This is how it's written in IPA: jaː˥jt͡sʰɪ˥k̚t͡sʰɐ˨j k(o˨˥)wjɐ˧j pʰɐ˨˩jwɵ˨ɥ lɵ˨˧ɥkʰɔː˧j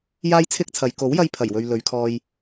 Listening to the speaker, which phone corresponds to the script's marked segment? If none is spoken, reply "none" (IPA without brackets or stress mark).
o˨˥